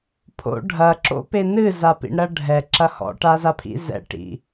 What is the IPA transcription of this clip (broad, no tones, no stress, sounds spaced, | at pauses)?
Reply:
pʰ o̰ ɖʱ ɐ ǁ o̰ p e n ɨ z a p ḭ ɳ ɾ ɐ ɖʱ ɛ ǁ ɐ h ɔ̰ ʈ a z a pʰ ḭ z ɛ̰ ʈ ḭ